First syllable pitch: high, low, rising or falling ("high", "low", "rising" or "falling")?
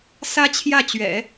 high